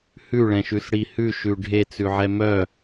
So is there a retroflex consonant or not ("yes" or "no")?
yes